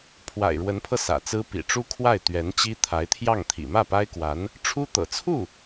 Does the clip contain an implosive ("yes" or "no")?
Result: no